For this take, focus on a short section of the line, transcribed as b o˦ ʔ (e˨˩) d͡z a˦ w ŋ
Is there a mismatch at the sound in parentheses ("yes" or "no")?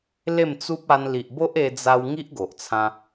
yes